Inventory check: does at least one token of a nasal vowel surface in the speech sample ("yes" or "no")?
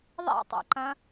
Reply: yes